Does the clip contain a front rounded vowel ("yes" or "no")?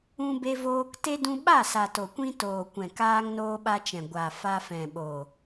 no